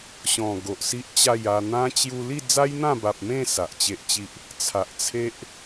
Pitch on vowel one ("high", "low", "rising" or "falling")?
low